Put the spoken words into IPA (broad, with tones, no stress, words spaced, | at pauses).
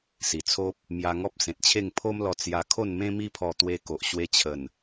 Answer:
si˨˩t͡sʰo˦p̚ | mja˧ŋɔ˦p̚ sẽ˨t̚t͡ɕʰe˥˧ŋpʰo˦mlɔ˧ t͡sja˧kʰo˥˧nmẽ˦ mi˦pʰɔ˧t̪we˧ko˨ʔ ɕwe˧t͡ɕʰə˨˩n